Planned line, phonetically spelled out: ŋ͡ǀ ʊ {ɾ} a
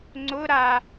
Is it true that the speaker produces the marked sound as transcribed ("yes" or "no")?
yes